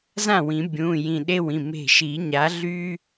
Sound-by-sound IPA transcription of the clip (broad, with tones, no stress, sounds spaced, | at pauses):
z ã˥˩ w ĩ˨˩˦ bʲ ũ˩˧˩ j ĩ˧˩ ɗ e˦ w ĩ˩˧˩ m e̤˧˩ ʃ i˨˩˦ ɲ a˨˦ ɮ y˦